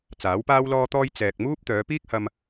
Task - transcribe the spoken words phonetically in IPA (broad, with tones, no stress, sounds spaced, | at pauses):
t͡s aː˨˥ w p aː˥ w l ɔː˥ t̪ ɔː˥ j t͡s ɛː˨ k̚ m uː˥ p̚ t̪ œː˨˧ p iː˥ k̚ h ɐ˧ m